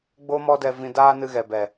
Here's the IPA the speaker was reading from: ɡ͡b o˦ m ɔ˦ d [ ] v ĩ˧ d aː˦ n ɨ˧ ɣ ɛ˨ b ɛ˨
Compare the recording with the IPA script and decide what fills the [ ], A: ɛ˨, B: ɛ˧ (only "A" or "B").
B